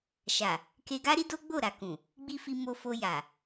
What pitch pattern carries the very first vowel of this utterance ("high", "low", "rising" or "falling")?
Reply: low